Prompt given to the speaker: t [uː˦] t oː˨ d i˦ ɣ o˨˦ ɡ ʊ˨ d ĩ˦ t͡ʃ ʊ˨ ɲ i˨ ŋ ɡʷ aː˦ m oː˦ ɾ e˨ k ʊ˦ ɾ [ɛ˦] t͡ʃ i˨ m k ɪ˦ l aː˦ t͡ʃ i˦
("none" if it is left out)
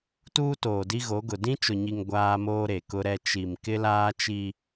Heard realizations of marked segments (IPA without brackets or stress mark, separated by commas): uː˦, ɛ˦